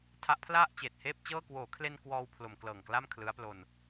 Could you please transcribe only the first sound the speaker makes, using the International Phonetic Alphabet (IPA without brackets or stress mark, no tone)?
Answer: tʰ